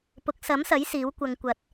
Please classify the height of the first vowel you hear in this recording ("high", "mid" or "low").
high